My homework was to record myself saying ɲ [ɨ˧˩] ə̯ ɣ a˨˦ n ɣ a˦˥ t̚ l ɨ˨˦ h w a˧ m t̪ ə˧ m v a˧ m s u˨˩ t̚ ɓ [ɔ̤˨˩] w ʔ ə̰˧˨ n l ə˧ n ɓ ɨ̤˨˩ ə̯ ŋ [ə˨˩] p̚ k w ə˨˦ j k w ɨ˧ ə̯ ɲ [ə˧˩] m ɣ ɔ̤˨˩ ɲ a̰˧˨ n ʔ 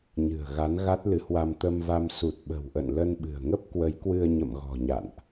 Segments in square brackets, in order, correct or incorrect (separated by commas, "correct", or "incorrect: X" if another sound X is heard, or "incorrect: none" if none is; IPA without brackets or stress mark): incorrect: ɨ̤˨˩, incorrect: ə̤˨˩, incorrect: ə˦˥, incorrect: ə̰˧˨